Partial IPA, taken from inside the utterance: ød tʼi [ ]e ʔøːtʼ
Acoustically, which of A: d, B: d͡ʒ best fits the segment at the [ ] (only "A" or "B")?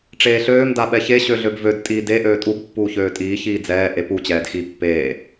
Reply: A